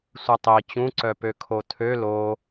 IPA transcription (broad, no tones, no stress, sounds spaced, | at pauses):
sʷ ɛ tˤ i t͡ɕ ũ ǀ œ p ø kʰ o tʰ ø l o